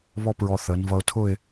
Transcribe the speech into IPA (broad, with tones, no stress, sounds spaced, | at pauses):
β ɔ˥ p ɹ ɔ˧ θ əː˩˧ n v ʌ˧ ʊ̯ tʰ ʊ˥˧ ɪ̯